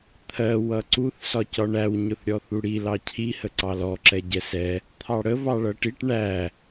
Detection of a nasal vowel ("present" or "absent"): absent